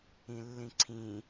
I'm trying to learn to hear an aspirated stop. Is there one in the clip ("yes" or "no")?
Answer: yes